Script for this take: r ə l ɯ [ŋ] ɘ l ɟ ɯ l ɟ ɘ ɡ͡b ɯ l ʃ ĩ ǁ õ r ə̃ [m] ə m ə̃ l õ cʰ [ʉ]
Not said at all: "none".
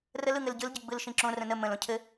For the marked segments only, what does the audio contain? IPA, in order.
ŋ, n, ɘ

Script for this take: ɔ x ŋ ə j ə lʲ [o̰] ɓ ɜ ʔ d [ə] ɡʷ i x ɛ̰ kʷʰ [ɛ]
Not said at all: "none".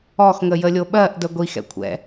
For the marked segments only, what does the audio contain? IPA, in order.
o, ə, ɛ̰

